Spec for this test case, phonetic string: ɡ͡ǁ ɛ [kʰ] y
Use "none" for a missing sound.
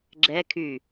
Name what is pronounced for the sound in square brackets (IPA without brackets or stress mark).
kʰ